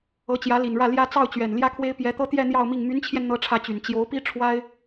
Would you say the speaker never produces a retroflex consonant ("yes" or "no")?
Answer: no